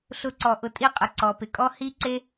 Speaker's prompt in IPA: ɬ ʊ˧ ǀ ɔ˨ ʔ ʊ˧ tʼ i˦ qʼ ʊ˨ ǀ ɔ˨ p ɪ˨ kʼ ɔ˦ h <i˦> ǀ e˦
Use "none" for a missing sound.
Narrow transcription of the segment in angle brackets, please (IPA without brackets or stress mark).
i˦